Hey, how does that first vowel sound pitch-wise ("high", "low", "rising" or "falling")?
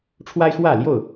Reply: high